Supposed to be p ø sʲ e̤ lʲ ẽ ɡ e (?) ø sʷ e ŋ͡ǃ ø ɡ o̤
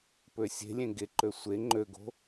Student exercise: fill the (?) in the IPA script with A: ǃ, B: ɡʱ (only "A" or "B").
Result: A